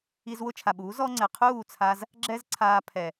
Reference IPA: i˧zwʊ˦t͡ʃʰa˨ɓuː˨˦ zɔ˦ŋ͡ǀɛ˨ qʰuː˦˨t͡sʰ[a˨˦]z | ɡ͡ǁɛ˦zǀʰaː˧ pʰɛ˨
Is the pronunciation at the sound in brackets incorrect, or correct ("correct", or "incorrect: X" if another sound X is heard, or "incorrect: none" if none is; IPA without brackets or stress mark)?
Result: incorrect: a˧